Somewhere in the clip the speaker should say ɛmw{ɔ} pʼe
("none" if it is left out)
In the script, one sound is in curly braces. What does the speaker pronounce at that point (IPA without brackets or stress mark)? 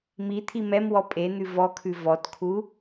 ɔ